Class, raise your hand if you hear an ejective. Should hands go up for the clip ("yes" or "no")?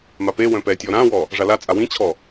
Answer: yes